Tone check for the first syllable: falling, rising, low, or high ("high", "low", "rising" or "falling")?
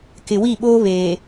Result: low